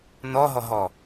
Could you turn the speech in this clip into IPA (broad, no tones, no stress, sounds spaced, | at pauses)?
n ɔ ɦ ɔ ɦ ɔ